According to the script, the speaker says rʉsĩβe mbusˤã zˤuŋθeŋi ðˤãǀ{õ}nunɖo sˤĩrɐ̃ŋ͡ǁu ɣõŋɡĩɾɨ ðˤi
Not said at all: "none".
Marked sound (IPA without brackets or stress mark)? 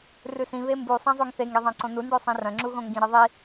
õ